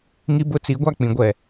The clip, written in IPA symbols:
ŋ i˦ b ʊ˦ t͡s i˨˦ ɡʷ a˦˨ k͡p ĩ˨ ɡʷ ɛ˨

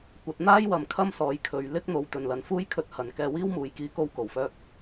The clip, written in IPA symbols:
kʷ ɐ˨˥ t̚ n̪ aː˥ j w ɐ˨ m kʰ ɐ˥ m s ɔː˨˧ j kʰ ɵ˨ ɥ l ɪ˥ k̚ n̪ o˨ w t̪ ɵ˨ n l ɐ˨ n f uː˥ j kʰ ɵ˧ t̚ h ɐ˨ n k ɛː˧ w iː˥ w m uː˨˧ j k iː˧ k o˧ w k o˨˩ w f œː˧ k̚

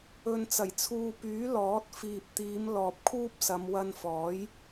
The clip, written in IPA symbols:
ɵ˨ n t͡s ɐ˨˩ j t͡sʰ uː˨ p yː˨˥ l ɔː˨˥ t̚ f iː˨ p̚ t̪ iː˨˧ m l ɔː˨ p̚ kʰ uː˥ p̚ s ɐ˨˧ m w ɐ˧ n f ɔː˨˥ j

